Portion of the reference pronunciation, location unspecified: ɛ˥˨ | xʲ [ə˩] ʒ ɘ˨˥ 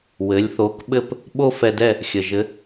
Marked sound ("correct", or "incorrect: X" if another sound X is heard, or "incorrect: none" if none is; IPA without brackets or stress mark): correct